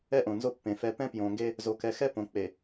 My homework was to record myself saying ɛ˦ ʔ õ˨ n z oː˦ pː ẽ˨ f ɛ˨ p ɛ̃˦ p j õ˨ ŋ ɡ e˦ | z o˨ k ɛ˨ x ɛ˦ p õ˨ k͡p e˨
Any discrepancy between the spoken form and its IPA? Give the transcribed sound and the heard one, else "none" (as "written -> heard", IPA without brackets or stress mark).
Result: oː˦ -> o˦